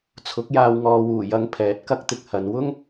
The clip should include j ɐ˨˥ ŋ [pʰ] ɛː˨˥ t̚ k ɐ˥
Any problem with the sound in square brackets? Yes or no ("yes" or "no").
no